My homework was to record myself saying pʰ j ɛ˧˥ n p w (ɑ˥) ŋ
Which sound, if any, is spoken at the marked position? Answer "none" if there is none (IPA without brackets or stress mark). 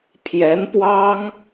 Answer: ɑ˥